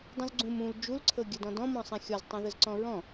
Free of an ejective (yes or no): yes